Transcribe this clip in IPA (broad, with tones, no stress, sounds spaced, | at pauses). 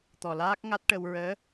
t̪ ɔ˨˩ l aː˦˥ k̚ ŋ a˦˥ t̚ ʈ ə˧ w ɹ əː˧˥